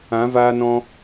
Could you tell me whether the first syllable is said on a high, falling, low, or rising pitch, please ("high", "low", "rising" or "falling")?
rising